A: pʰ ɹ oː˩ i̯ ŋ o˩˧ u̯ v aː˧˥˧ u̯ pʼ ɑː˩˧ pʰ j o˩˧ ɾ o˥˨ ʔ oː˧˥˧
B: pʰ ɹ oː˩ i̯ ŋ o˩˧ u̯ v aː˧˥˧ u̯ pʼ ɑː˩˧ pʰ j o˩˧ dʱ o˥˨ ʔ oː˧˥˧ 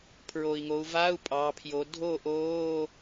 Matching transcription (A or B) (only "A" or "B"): B